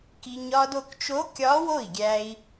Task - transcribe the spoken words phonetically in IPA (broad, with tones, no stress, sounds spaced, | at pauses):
k i˧ ɲ ɒ˧ d o˧ k t͡ʃ o˧˥ kʲ ɒ˧˥ w o˥˩ i̯ ɡʲ æ˧ i̯